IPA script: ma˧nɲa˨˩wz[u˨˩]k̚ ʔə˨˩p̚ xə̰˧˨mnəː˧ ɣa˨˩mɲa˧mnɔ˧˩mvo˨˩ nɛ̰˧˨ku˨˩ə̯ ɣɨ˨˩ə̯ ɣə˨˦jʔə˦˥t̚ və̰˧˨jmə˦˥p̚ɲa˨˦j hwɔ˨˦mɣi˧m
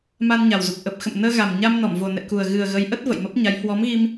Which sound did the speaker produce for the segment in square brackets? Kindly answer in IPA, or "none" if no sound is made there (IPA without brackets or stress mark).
u˨˩